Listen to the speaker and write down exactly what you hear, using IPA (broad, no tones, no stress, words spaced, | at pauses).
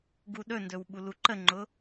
ɡuɗɵndɵw ɓuluǃəŋ͡ǃʊ